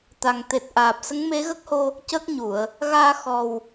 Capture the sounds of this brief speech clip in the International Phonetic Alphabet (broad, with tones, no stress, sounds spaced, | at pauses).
t̪ a˨˩ ŋ t̪ e˨˩ t̚ ʔ aː˨˩ p̚ s ə˧˥ ŋ m e˧˥ ɣ ə˦˥ k̚ h o˧ | c ə˦˥ k̚ ɲ u˨˩˨ ə̯ | ɣ aː˧ x ɔ˨˩ w